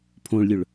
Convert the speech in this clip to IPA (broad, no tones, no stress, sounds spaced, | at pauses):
pʰ õ ɭ lʲ ɵ ɭ